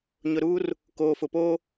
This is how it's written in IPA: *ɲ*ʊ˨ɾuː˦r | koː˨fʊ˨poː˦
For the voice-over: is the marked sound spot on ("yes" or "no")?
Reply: yes